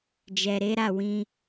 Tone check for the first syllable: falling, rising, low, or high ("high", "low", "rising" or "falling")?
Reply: low